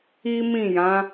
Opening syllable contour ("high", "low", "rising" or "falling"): high